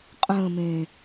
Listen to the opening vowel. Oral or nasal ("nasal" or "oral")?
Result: nasal